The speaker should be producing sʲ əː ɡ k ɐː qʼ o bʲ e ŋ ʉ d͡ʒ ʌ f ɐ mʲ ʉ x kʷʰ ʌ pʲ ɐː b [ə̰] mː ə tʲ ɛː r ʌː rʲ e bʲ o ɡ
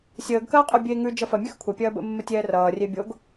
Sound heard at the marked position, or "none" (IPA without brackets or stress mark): ə̰